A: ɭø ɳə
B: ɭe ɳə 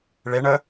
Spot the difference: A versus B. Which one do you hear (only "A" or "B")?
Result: B